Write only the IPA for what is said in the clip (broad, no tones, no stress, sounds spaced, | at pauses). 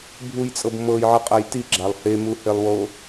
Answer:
bʱ u j t͡sʼ ɤ b m ɤ j ʕ ɤ qʼ a j t i ɡ͡ǁ a lˠ h e m u h e lˠ w o